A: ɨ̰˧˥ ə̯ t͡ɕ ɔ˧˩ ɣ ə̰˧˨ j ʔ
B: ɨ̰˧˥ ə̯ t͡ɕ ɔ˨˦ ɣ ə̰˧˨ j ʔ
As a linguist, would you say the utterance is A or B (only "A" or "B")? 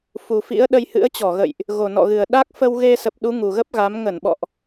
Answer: A